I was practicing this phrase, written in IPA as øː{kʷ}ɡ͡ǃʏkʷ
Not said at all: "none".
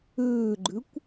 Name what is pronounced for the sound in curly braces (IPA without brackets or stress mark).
none